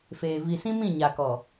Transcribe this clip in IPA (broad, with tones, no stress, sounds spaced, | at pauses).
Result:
f eː˨ v i˨ s ĩ˦ m ĩ˦˨ ɲ a˨ k ɔ˨